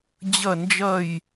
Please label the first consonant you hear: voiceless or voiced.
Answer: voiced